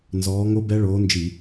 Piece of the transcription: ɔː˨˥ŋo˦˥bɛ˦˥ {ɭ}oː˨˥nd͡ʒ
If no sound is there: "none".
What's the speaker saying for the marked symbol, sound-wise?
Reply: ɭ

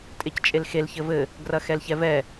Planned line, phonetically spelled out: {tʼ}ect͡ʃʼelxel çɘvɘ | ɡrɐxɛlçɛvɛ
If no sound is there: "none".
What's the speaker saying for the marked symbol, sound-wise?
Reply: tʼ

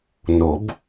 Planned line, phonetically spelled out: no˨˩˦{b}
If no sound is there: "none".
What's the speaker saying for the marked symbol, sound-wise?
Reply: b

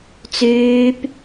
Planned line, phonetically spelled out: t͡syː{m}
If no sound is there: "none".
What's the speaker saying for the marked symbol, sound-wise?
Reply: p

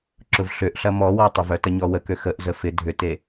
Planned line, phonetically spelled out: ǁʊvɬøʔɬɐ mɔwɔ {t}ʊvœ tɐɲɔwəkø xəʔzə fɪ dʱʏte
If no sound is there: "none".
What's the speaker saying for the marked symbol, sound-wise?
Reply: tˤ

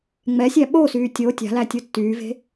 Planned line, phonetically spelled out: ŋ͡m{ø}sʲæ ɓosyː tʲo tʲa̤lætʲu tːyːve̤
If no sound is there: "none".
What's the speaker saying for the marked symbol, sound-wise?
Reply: ɛ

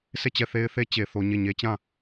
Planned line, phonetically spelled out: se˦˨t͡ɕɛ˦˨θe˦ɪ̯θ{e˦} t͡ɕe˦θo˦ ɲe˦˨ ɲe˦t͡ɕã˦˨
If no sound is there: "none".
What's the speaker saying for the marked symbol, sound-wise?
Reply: e˦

